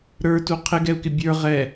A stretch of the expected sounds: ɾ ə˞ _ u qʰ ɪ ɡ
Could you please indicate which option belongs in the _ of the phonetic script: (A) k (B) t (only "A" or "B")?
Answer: B